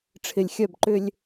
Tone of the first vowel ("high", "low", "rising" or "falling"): low